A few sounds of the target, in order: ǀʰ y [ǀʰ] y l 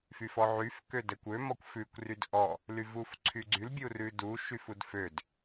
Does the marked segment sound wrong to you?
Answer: yes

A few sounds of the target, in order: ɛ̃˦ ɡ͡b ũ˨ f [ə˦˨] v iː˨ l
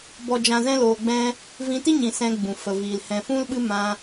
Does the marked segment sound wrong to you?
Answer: yes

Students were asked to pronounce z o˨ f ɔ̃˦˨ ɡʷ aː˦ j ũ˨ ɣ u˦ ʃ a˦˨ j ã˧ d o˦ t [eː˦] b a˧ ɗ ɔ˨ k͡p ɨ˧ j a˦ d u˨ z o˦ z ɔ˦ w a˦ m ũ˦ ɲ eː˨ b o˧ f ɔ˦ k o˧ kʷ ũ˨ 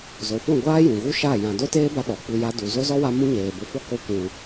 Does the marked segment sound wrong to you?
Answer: no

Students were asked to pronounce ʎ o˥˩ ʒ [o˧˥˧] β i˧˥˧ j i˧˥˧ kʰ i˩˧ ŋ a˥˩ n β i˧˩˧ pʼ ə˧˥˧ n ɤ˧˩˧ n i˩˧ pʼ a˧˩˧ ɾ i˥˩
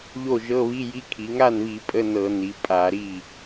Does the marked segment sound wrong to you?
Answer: yes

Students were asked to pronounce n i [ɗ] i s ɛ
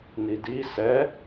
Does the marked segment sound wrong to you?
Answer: yes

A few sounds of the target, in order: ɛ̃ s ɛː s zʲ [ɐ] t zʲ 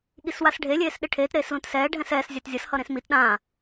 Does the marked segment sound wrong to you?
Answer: yes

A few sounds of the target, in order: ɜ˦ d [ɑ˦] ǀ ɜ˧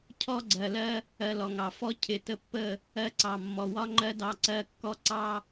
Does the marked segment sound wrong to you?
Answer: yes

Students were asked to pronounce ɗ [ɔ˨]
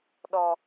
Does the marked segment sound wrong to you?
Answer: yes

